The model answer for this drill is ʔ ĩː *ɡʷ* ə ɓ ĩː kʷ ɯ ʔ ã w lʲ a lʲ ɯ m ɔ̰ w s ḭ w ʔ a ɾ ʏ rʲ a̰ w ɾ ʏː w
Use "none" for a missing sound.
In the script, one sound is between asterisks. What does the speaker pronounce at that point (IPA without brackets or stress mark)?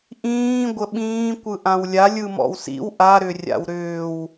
ɡʷ